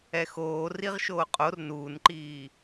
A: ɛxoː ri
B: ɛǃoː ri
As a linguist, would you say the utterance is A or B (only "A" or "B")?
A